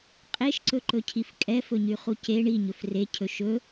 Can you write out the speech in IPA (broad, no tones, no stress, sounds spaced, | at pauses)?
qʼ e ʃ ǀ ɵ ǃ ɵ cʰ i f kʼ ɛ f ɵ ɲ y χ u c e ɳ i ɲ ɵ f r e cʰ ɵ ʃ ɵ